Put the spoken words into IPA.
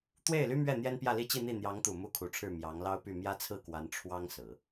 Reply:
t̪ w e˥˩ ɪ̯ l y˥ m ɥ ɛ˥˩ n̪ j ɛ˥ n p j ä˥˧ l i˥˧ t͡ɕ i˥˧ n̪ i˥˩ n̪ j ɑ˧˥ ŋ t̪ u˨˩ m u˥ kʰ u˧˥ ʈ͡ʂʰ ɻ̩˥˩ m j ɑ˧˥ ŋ l ɑ˥ ʊ̯ p y˥˩ m j ä˥ t͡sʰ ɹ̩˥˩ k w a˧˥ n ʈ͡ʂʰ w ɑ˥ ŋ s ɹ̩˨˩˦

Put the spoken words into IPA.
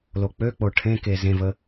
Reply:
l o k͡p ø k͡p o ʈʰ ẽ k e z ẽ v ə

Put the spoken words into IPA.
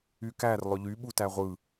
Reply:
y k æ r lˠ ø ʎ y ɓ u t æ ʁʷ ɯ

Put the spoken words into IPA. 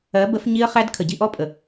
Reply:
ɜ˨˦ b ə˨˦ f ɲ i˦ ə̯ χ æ˦ d kʰ ə˨ ɟ i˧ ʔ ɔ˦ pʼ ə˨

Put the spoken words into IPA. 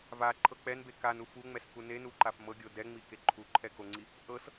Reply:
v a ǃʰ ɤ k͡p ɛ n b e k a n u f u ŋ͡m ɛ s k u n e n u ǃ a f m ɤ ɡʲ o d ɛ ŋ͡m i k e ǃʰ u ǃʰ ɛ k o ŋ͡ǀ i | ʔ ɤ s

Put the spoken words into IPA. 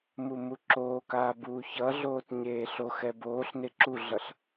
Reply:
m u m u ǁ oː k aː b uː ç ʌ ɮ oː t ɲ eː ɬ o x ɛ b oː ɬ n e ǁ u ɮ ʌ ɬ

